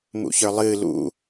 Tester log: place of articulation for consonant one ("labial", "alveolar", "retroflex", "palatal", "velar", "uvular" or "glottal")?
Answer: labial